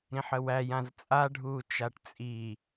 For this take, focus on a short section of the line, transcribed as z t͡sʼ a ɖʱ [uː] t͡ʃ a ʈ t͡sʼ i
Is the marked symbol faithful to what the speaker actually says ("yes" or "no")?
yes